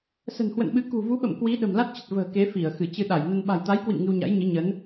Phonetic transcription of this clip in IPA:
s ə̤˨˩ n h w ə̰˧˨ n ɓ ɨ˨˦ k ṳ˨˩ v u˨˦ ɓ ə̰˧˨ m k w i˨˦ ɗ ə̤˨˩ m l a˦˥ t̚ t͡ɕ ə˨˩ t̚ v ə̤ː˨˩ k e˨˦ f i˧˩ ə̯ x ɨ˧˩ t͡ɕ ɨ˧ ɗ a˧˩ j n ə˧ n ɓ a̤˨˩ j t̪ a˨˦ j k w ḭ˧˨ m ŋ ɨ˧ w ɲ a̰˧˥ j ɲ ɨ˨˦ ɲ ə˨˦ n

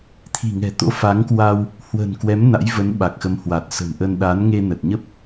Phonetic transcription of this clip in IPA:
t̪ʰ i̤˨˩ ŋ ɛ̤˨˩ t̪ o̰˧˥ f a˨˦ ŋ k w a˧ w | h w ə̤˨˩ n k w ɛ˨˦ m n a̰˧˥ j v ə˨˦ n ɓ a˨˩ k̚ x ə˨˦ m h w a˨˩ t̚ s ə̤˨˩ m ʔ ə˧ n ɗ a˨˦ n ŋ e˧ n ə˨˩ t̚ ɲ ə˦˥ p̚

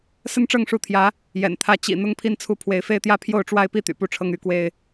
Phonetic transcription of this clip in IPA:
s ə˦ n ʈ͡ʂ ɤ˥˨ ŋ ʂ u˨˦ t̪ʰ j ä˨˦ | j ɛ̰˨˩ n t̪ʰ ä˨˦ t͡ɕ ḭ˨˩ n̪ ʊ˥˨ ŋ pʰ i˥˨ n t͡sʰ u˥˨ pʰ w e˨˦ ɪ̯ f e˦ ɪ̯ t̪ j ä˦ pʰ j o˥˨ ʊ̯ ʈ͡ʂ w a˦ ɪ̯ p i˦ t̪ y̰˨˩ p u˥˨ ʈ͡ʂʰ ɤ˦ ŋ y˨˦ k w e˦ ɪ̯

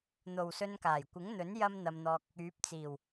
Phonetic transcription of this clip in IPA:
n̪ o˨ w s ɵ˧ n k aː˨˩ j kʷ ɪ˨˥ ŋ n̪ ɵ˨˥ n j ɐ˥ m n̪ ɐ˧ m n̪ ɔː˧ k̚ | yː˨˥ p̚ t͡s iː˨˩ w

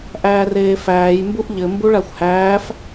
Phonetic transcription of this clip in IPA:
ʔ æː r eː f æː j m b u ʔ ʎ ɘ m b u ɭ a xʷ h æː f

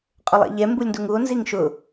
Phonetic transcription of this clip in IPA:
qʼ ʊ lˠ ɛ̰ ʎ ɛ m b u lʲ n d u ŋ u o̯ n z i ŋ ʃ ʊ

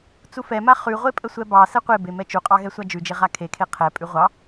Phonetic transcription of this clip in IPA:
t͡s u f ɛ m a χ ʉ ʁʷ e pʼ ə sʷ ɛ b ɑ s ɛ qʷ e b e m ɛ t͡ʃ u qʼ ɑ ɣ ɛ sʷ a d͡ʒ ʉ d͡ʒ e ʁ a kʰ e kʰ e qʰ ɛ pʼ ʉ ʁʷ ɑ

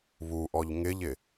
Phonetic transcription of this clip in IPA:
β u ʔ ɔ ʎ ŋ ɪ ʎ ɪ

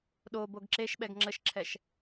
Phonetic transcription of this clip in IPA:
ɗ o b o ɡ ǁ e ʃ ɓ ɛ ɡ ŋ͡ǁ ə ʃ ǁʰ ɛ ʃ

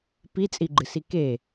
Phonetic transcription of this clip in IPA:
p i t͡sʼ i ɡ͡ǃ ɨ s i k e

